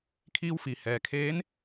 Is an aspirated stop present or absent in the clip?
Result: present